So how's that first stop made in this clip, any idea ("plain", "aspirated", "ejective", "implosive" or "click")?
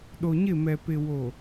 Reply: implosive